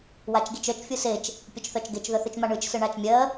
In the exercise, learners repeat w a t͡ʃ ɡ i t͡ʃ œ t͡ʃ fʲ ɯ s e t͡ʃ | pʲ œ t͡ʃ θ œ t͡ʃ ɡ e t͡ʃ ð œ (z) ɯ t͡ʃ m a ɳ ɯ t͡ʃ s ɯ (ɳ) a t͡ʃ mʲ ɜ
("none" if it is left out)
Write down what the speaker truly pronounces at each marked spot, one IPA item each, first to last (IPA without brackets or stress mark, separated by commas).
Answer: θ, ɳ